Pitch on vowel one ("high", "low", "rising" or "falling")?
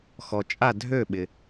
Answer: low